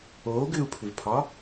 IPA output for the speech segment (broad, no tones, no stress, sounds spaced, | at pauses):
oː ɡ ʏː u̯ pʰ ʏ v pʰ ɒː